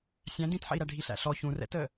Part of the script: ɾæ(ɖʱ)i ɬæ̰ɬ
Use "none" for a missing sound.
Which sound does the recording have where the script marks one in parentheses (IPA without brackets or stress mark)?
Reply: ɖʱ